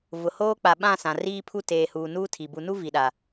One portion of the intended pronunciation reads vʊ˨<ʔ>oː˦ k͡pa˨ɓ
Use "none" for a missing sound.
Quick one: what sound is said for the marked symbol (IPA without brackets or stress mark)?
h